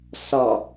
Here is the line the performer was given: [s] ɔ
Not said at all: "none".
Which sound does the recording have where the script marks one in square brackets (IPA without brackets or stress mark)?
s